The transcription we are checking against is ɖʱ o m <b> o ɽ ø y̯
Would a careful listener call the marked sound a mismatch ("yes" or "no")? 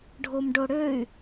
yes